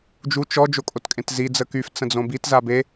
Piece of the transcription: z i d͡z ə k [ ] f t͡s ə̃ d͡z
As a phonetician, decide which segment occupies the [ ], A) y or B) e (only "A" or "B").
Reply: A